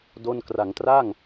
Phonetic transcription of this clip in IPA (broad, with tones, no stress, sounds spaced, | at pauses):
d o˥˩ n k r a˩˦ ŋ t r a˥˩ ŋ